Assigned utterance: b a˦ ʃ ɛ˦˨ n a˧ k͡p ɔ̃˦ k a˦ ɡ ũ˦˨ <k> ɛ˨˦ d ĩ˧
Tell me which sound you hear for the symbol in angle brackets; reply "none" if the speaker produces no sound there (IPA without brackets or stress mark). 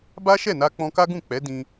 k͡p